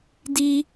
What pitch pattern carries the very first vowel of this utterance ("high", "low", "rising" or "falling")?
high